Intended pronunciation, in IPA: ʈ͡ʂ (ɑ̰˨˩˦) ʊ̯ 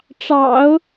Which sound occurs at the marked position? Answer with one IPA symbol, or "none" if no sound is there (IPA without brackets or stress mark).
ɑ̰˨˩˦